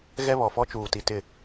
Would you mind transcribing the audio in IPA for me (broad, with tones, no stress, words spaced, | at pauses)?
ɣɛ˦βɔ˨fɔ˦ t͡ʃuː˨ti˨tɪ˦˨